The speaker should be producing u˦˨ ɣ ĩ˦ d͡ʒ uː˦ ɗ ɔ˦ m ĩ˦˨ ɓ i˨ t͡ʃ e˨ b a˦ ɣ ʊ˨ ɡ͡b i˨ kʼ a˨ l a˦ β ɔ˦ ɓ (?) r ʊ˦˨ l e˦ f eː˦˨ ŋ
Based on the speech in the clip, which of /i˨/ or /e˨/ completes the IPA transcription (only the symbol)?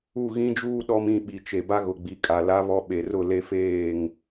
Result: e˨